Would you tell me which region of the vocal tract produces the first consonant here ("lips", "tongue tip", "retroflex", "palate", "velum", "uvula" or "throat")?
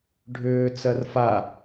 retroflex